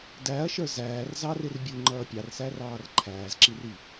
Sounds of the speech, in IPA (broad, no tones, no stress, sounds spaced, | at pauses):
d æ ɐ̯ ʃ ə˞ z æː r z ɑ r ɪ r bʲ u ŋ͡ǃ ʌː pʲ ɑ r s æ r ɑː r ǃʰ æː z ǁ i r i